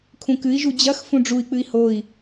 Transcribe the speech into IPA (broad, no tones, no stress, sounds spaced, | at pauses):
kʰ ũ k ɨ i̯ ʒ u d͡ʑ ɐ x f ũ ɖ͡ʐ u i̯ k͡p ɨ i̯ h o i̯